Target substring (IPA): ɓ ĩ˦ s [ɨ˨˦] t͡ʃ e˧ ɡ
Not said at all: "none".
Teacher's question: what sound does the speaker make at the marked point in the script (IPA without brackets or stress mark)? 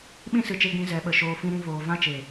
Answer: ɨ˨